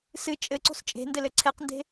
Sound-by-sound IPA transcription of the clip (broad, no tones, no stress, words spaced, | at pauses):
sɨ t͡ʃʼɘǀo̤s t͡ʃʼe̤ndɘlɘ ǀʰɛqnde̤